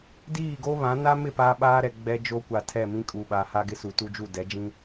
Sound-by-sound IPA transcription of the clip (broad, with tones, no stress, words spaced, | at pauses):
diː˦˨ɡo˦ βã˨˦ na˦mɪ˦˨ paː˦ɓaː˦ɾɛ˨ ɡ͡bɛ˦d͡ʒo˦kʷa˨ tʰɛ˦˨mĩ˦kʼu˨ɓa˨ ha˦ɡɪ˦su˨ tu˦d͡ʒu˦˨ dɛ˨˦d͡ʒĩ˦